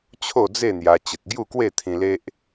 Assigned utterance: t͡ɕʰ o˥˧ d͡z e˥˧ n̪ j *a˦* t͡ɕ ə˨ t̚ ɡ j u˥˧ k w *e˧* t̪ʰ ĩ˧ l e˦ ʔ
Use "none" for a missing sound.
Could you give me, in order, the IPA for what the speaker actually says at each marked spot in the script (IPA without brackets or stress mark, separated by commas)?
a˧, e˥˧